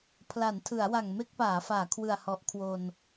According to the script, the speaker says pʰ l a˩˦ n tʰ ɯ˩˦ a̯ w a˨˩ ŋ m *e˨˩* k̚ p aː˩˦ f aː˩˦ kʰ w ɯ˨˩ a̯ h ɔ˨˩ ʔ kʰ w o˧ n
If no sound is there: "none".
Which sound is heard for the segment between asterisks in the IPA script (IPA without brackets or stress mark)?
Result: e˥˩